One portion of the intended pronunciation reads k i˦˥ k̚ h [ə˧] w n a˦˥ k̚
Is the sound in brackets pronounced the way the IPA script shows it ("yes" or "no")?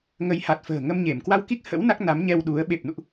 no